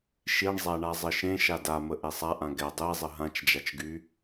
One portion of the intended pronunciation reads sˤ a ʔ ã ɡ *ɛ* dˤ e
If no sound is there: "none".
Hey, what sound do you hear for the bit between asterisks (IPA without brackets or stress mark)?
ɛ